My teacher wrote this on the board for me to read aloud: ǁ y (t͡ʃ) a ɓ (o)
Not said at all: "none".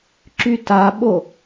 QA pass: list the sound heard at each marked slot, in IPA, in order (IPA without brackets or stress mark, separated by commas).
t, o